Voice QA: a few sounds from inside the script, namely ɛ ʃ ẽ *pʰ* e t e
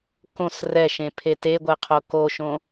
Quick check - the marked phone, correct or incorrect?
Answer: correct